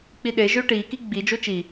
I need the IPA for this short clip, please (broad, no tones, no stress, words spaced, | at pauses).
k͡piɗe ʒøʈiki ɡ͡bi d͡ʒot͡ʃi